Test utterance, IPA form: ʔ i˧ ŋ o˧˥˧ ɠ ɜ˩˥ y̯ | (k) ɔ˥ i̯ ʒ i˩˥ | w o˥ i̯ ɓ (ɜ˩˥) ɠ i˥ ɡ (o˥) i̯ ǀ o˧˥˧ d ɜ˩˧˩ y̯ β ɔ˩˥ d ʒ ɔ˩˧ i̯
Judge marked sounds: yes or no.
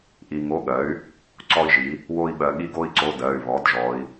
no, no, yes

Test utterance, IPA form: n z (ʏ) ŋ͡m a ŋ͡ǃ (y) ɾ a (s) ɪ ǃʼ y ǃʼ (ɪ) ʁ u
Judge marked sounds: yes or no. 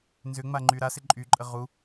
yes, yes, yes, no

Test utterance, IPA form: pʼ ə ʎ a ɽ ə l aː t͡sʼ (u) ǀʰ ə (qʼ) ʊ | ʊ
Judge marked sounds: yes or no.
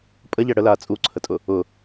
yes, no

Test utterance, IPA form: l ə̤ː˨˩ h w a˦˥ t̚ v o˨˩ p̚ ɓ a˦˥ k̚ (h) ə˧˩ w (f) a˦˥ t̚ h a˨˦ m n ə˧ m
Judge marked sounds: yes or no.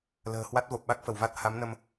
no, no

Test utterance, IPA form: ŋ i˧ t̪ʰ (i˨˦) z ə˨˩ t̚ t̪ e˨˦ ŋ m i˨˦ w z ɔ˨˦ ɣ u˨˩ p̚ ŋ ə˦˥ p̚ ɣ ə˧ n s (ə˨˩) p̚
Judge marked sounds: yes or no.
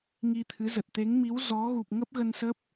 no, no

